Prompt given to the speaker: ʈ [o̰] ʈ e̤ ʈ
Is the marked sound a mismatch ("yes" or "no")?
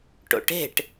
no